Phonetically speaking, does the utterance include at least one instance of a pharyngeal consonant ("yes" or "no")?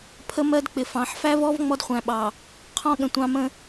yes